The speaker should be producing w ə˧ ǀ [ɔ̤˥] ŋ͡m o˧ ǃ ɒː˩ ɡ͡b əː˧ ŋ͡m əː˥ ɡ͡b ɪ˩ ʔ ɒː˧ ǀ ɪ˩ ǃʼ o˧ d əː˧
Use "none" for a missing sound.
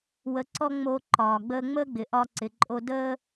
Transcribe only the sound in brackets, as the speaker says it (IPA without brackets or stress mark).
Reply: ɔ˥